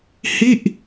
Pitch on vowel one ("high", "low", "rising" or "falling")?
falling